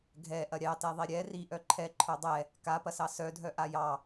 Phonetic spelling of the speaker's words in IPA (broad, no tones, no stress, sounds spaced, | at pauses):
ɡʱ ɛ ʔ ɐ ɾʲ ɑ t ɛ ðˤ i ɾʲ ɛ r i ʔ œ ǃʰ ɛ ǃʰ œ dˤ ɛ | k a p ɐ s ɑ s œ dʱ œ ʔ a j ɑ